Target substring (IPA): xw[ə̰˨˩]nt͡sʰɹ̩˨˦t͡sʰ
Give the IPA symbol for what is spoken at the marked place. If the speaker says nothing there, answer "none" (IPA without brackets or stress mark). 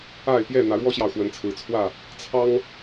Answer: ə˨˦